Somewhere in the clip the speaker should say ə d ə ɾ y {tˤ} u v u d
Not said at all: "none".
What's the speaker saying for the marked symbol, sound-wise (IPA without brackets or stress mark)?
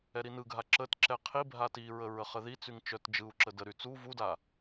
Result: t͡s